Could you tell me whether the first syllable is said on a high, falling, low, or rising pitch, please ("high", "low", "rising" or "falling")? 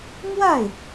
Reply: falling